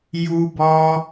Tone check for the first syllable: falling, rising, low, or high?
high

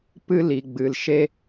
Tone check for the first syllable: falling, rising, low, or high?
high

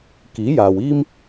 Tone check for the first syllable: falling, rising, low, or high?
rising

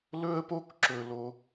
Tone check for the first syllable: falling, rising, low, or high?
high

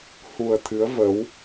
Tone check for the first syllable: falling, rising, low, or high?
low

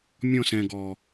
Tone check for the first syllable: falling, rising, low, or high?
falling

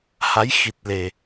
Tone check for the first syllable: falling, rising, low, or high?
rising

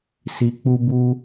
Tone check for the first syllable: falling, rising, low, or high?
low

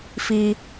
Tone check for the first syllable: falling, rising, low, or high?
high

